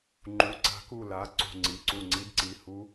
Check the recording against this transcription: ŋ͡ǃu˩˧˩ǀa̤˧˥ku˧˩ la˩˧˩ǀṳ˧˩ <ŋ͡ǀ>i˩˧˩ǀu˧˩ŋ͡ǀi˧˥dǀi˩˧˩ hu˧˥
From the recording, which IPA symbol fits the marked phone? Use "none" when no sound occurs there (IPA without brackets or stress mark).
ŋ͡ǀ